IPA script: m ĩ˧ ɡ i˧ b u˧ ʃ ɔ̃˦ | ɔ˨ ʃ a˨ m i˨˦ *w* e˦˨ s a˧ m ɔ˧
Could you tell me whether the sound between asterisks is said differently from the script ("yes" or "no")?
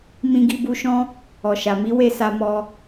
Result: no